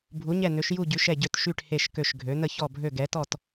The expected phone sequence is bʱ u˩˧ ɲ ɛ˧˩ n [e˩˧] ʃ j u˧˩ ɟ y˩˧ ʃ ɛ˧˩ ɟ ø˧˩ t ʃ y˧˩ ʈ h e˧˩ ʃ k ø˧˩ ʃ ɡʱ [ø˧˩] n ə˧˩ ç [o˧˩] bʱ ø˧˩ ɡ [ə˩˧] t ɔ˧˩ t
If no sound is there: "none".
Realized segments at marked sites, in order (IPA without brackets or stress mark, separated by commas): ø˩˧, ø˩˧, ɔ˧˩, ɛ˩˧